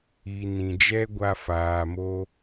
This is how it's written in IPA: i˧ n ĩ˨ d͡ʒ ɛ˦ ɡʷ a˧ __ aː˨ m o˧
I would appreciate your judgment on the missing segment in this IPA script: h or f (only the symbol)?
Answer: f